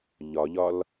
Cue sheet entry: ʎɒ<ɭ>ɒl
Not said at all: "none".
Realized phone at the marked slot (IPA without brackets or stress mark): ʎ